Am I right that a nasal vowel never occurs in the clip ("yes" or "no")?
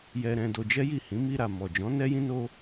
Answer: no